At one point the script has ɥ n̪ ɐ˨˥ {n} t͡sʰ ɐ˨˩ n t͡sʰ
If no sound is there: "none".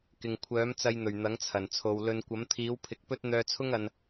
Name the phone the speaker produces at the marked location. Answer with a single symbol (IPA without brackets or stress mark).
ŋ